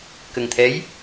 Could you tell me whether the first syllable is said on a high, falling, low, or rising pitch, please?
low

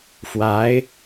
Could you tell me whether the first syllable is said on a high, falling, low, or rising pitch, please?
rising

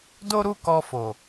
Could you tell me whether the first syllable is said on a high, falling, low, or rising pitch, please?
high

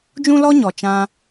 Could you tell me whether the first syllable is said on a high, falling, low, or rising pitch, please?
high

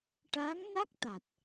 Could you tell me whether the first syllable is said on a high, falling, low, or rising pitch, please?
rising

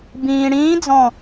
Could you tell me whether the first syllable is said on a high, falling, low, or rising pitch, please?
low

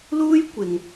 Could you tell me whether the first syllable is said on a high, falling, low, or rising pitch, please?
high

